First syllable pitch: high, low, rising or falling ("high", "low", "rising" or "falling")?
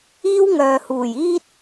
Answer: high